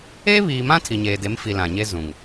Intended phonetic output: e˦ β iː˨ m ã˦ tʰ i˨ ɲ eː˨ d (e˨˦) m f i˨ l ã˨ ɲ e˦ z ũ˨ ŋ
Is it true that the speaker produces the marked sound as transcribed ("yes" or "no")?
yes